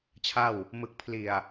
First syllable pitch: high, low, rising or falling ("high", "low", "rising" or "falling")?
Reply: falling